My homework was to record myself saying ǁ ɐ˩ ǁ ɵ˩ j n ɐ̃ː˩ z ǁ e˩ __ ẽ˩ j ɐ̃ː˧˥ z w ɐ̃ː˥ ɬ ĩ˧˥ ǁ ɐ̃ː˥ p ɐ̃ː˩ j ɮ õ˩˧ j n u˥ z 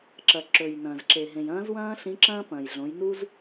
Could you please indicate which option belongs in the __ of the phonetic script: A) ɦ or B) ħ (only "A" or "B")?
A